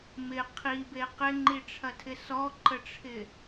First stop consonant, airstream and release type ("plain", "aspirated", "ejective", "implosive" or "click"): aspirated